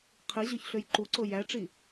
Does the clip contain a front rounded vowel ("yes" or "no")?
yes